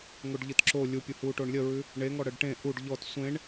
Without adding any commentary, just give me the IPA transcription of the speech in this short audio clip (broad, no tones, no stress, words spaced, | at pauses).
ŋoɖʎɯtǁo lʲupʲuhu ʈoɳlʲəɹʉ | ɳeŋɔ ɽəɖʈẽ ʔuɖ ʎɔt sʷẽɳ